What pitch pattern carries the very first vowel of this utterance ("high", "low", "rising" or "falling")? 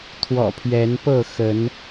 low